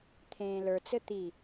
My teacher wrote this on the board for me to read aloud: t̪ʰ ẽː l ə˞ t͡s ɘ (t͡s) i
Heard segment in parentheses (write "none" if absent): t̪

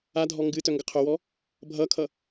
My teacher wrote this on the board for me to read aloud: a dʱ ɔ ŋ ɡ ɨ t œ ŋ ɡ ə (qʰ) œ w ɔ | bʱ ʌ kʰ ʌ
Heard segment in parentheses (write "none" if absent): qʰ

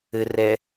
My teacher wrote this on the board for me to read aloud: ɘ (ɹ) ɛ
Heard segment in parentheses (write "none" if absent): r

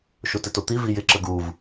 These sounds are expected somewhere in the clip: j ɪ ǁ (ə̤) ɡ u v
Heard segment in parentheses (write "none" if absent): ə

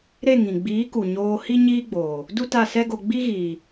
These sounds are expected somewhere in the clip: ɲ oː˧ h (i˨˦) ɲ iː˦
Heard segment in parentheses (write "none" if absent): i˦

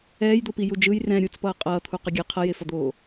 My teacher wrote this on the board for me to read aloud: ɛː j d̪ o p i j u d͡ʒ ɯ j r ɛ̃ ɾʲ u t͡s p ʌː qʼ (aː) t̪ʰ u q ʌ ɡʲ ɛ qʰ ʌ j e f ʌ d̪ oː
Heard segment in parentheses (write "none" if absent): ʌː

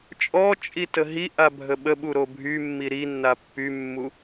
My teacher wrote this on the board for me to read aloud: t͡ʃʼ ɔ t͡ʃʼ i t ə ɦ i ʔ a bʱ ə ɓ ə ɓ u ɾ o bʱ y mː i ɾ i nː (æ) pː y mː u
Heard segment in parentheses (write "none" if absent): a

